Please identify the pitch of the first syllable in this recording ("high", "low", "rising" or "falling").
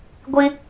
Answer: high